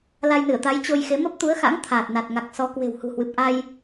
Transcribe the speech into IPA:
la˧jnɨ˧˩ə̯t̪a˨˦j t͡ɕo˧jxe˨˦ mə˦˥p̚t̪u˨˦ə̯xa̰˧˥ŋ t̪ʰaː˨˩t̚na˨˩t̚ŋa˨˩k̚sɔ˨˦ kwe̤˨˩whṳ˨˩hwɨ˨˩p̚ ʔa˧j

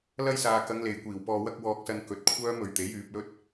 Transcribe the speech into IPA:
lɐ˥j saː˨kɐ˨˧ŋ le˨jkʷiː˨˩wpɔː˧wɐ˥k̚ wɔː˧k̚sɐ˧n kɵ˨˥t̚kʷʰœː˥mɵ˨˧ɥt̪e˨˥j yː˧p̚lɵ˥t̚

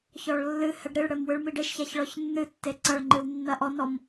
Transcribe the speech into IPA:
çɔɭlːɨhɛɖ ɾiɭɽɘm wɨɭmiɖeʃçaç ɭɔçnːɨtːe ǀɐɭŋ͡ǃɨw nːɐʔɔnɔm

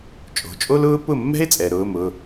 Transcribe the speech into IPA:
t͡ʃʼo̤˩˧˩t͡ʃʼo˥lʊː˥ pʊ˥˩mːɛ̤˥e̯t͡sʼɛ˩ɾʊː˩˧˩m ʊ˩˧˩

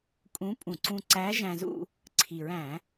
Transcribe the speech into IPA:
kʼũ˧˥pʼũ˧˩˧ ǀũ˧ ǀæ˧˥ ʒæ̃˧ zṵ˥˧ | ǀʰi˨˩ɹæ̃˧˩˧

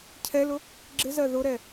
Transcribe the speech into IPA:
cʰɛlʊ | ɡ͡ǁɪzɜ ðʊɾɛ

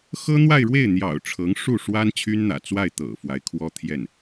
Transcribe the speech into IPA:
xɤ˥n̪wa˥˧ɪ̯ɻwe˥˩ɪ̯n̪jɑ̰˨˩ʊ̯ ʈ͡ʂʰɤ˧˥ŋʂu˥˩ʂwa˥n t͡ɕʰy˥nn̪ä̰˨˩ t͡swa˥˩ɪ̯ t̪ɤ̰˨˩ fwa˧˥ɪ̯kʰwɔ˥t̪ʰjɛ˥˩n

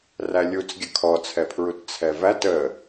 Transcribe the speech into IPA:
rælʲut͡sɡʲə kʰɔt͡sʰɛpʰɹut t͡sʰɛvæt ə

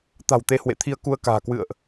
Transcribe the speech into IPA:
t̪a̤˨˩wt̪e˧hwḛ˧˨t̪ʰi˧ə̯ ku˧ə̯ka̤ː˨˩ kwɨ̰˧˨ə̯ʔ

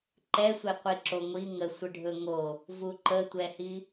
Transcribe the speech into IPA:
ǃɛsʷe qʷiǁoŋʷi ŋə sʷəɖʱɵŋo | vuǃətʷɛhi

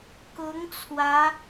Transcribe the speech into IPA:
kʊ˧˥ŋ t͡sʰwä˧˥

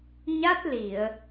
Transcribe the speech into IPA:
ɲa˦˥t̚li˨˩˨ə̯

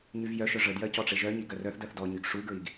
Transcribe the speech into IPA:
ɲyvjœʃœ ʐədjɜ cɔʈ͡ʂeʒœɲi ɡɜrœθdɜθ dɔɲyɡ ʂuɡɹiɡ

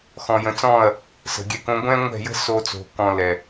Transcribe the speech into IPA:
xɔ̃˨jə̃˨t͡sɔ̃˦˨ɐ̯ | sə̤˨ɡʲɛ˧k õ˧ɡʷɛ̃˦ŋʷɛ̤˦˨jə̤˦ so˦ t͡so̤˧kɔ̃˧lɛ˨

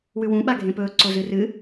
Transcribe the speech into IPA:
wʉwũɓa ɡʱẽpɵː ǀozɨrɨ

